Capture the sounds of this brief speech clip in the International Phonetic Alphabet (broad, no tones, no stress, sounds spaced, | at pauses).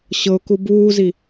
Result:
ɕ ɤ ʊ̯ k u b uː z i